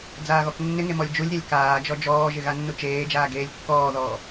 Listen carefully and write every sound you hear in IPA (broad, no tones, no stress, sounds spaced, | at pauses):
d͡z aː ɣ ɔ k nː ɪ ŋ e m ɔ lʲ d͡ʒ u lʲ ɾʲ a lʲ k aː d͡ʒ ɔ d͡ʒ ɔː ʒ ɪ ɣ a nː u t͡ʃ eː d͡ʒ aː ɡ eː lʲ kː ɔː ð ɔː